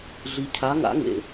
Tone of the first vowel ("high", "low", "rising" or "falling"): low